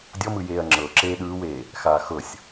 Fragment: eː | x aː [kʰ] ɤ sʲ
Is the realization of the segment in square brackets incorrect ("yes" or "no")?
yes